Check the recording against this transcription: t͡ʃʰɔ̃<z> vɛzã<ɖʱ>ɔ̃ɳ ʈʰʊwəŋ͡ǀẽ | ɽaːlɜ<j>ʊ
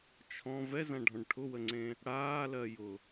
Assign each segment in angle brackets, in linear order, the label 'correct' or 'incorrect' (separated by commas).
incorrect, correct, correct